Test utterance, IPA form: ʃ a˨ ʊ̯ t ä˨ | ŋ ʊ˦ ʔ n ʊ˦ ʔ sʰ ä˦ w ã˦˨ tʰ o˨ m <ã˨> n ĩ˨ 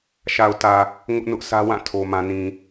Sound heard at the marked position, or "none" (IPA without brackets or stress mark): ã˨